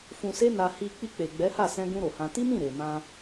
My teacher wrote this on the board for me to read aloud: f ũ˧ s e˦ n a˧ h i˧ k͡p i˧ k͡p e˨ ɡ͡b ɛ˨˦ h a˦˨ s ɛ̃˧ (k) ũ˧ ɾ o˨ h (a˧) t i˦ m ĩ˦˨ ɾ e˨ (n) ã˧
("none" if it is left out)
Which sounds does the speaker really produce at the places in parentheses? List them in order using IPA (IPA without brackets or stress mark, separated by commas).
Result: ɡ, ã˧, m